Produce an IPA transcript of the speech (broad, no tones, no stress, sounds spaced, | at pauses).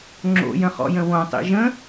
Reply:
ŋ͡ǁ o̰ j ə̃ χ ɔ̰ j ə̃ w õ tˤ ḭ ʒ ə̃